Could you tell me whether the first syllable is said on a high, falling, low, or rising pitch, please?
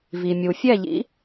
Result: low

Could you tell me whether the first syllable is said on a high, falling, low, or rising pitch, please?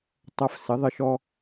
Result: high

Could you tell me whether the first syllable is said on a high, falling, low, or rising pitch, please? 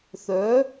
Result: rising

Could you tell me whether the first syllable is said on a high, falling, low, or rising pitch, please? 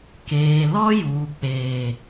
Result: low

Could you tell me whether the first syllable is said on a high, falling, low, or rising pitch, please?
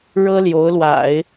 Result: high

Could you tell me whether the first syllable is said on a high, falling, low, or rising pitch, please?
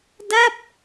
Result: falling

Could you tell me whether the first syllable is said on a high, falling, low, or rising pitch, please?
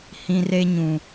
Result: high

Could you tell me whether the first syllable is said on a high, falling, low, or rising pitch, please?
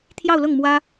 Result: falling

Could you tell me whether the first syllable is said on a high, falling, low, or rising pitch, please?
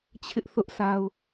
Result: high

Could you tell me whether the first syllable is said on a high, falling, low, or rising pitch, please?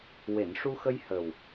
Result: low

